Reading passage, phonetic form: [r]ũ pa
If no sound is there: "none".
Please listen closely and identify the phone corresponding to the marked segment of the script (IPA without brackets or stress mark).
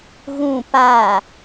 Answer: ɣ